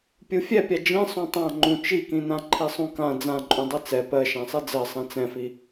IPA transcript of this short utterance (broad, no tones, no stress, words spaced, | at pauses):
pʲufʲɛpʲa d͡ʒĩ sˤũtˤã ŋ͡ǃũt͡ʃikĩnã ǃʰisˤũkã d͡zãǃʼũ dˤɛt͡sɛ pɜ ʃãsˤid͡zɜ sˤĩt͡sɛ̃fi